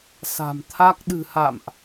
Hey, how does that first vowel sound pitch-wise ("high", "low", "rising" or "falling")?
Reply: low